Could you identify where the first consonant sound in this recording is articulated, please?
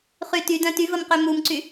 uvular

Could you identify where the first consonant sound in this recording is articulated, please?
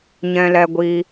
palatal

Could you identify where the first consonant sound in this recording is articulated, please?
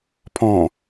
labial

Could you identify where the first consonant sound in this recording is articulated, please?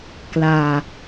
velar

